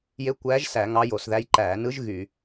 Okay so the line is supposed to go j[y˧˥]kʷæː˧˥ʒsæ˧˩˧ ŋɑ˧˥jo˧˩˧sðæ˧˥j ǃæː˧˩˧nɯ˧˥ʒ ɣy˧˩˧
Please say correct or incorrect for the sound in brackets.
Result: incorrect